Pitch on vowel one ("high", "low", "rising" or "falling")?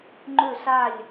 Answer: falling